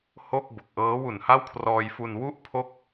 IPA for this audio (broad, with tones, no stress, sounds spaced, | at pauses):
h o˥˩ k̚ b o˨˩ k̚ ʔ ɤː˦˥ w u˨˩ n h a˥˩ w kʰ r ɔː˧ j f u˧ n w u˥˩ ʔ pʰ o˥˩ k̚